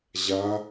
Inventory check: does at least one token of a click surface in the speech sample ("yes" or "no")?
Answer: no